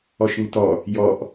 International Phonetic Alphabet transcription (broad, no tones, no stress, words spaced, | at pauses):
ɔʃŋɪtɔ | jɔʔ